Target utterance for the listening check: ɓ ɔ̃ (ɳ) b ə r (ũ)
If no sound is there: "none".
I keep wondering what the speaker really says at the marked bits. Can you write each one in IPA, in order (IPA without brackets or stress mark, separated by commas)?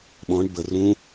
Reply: ɳ, ũ